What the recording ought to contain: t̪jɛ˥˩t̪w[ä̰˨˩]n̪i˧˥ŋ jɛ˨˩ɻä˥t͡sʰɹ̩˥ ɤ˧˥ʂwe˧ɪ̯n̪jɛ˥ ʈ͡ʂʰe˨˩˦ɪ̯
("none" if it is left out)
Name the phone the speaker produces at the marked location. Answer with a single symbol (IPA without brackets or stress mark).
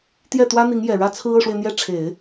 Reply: ä˥